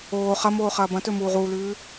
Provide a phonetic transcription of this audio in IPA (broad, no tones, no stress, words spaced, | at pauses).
oː χɐmoː χɐːbɐ̃tɵ muːʁuːlʉː